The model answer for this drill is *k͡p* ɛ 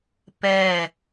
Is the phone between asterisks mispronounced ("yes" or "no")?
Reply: yes